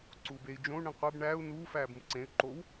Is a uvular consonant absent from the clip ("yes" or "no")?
no